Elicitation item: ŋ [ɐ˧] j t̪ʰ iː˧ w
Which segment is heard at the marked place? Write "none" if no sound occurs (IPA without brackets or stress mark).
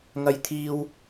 ɐ˧